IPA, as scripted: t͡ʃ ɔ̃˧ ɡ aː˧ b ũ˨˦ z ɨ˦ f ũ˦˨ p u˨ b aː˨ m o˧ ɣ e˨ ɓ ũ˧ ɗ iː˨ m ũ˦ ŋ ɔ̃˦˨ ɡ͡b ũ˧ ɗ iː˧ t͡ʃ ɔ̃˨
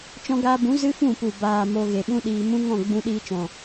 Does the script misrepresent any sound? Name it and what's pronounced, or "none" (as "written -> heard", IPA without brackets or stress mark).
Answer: none